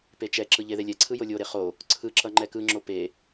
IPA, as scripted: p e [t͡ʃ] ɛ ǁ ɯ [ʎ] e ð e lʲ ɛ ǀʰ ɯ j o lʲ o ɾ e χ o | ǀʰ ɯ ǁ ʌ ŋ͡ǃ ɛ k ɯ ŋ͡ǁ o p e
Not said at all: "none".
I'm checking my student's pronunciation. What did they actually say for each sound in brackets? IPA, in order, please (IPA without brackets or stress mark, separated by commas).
t͡ʃ, ʎ